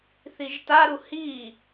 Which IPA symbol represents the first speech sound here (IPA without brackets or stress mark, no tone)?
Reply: θ